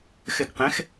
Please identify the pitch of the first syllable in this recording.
falling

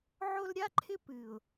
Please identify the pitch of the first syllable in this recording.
high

